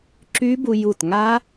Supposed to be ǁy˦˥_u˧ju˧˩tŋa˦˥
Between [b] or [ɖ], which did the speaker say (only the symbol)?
b